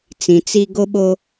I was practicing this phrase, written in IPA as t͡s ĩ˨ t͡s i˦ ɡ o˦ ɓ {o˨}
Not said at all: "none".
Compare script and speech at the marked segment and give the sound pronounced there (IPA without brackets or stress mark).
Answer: o˦